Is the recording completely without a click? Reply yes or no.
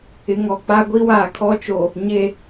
yes